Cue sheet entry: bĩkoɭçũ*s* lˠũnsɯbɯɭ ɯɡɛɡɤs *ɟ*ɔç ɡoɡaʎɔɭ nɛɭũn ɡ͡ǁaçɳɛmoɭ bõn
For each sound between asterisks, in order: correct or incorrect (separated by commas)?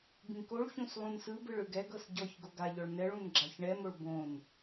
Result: correct, correct